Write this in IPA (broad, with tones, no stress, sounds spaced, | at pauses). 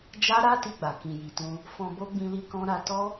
d͡ʒ a˦ ɾ a˦ t i˧ ɡ͡b a˨ k ĩ˨ j i˨ t ũ˧ | f ɔ̃˧ b o˦ ɡ͡b ĩ˧ l i˧ k ɔ̃˦ ɾ a˧ t ɔ˦